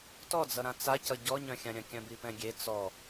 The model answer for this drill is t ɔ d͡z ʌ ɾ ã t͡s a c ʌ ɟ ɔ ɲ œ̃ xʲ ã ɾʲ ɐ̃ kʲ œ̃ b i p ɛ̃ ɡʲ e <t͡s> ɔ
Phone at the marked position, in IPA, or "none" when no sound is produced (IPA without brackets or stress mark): t͡s